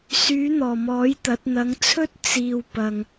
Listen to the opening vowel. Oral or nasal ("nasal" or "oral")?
oral